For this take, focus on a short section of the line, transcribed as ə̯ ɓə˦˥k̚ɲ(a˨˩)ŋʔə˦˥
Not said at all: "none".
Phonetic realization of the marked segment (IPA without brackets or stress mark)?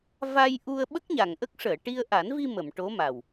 a˨˩